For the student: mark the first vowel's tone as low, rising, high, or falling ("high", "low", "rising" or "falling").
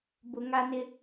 low